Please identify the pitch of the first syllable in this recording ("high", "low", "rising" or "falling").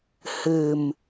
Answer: low